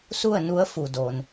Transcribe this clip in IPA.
s u˥˨ ə̯ n u˧˥ ə̯ f u˩ d o˩ n

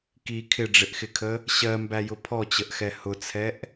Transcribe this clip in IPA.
k i kʰ ɪ ɖ͡ʐ ɪ ʔ x ɪ kʰ ə | ɕ ɜ m b æ j ʊ pʰ ɔ t͡ɕ ə ʔ x ɛ h ʊ t͡sʰ ɛ ʔ

